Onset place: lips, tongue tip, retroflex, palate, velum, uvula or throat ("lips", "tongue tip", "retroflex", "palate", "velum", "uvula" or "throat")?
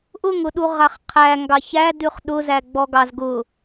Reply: throat